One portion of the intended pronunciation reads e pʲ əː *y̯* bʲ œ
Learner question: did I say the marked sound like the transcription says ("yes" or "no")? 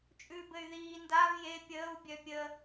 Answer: no